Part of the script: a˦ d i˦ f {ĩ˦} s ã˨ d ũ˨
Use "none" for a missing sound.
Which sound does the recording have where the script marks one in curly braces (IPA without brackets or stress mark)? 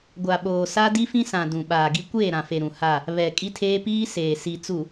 ĩ˦